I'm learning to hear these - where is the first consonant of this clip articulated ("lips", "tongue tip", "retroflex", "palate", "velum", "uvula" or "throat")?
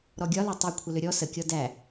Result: tongue tip